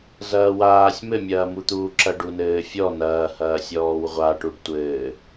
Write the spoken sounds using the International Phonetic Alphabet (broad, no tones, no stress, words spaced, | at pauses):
zɐːwaːsʲ mɘmʲɐːmut̪uː ǁɐɖunɘːfʲɔ nɐːhɐːsʲɔːw ʁʷaʈuɖ tʷɘː